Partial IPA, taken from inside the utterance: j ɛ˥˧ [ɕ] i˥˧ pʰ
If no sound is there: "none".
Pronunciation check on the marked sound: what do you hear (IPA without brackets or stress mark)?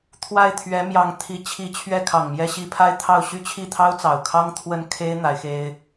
ɕ